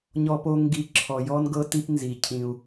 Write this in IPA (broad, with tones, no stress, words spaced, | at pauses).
ɲɔ˦po˦ ŋɡi˦˨ ǁʰɔ˨jɔ˦n ɡɤ˦ti˦pnzi˨ cʰĩ˦u̯